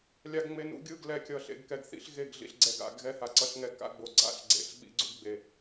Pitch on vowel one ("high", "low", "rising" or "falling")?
low